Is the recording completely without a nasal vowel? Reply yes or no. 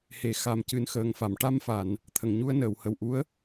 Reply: yes